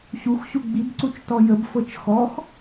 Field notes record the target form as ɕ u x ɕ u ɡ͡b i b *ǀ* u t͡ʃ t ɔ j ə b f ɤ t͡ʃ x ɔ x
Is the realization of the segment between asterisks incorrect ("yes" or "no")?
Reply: no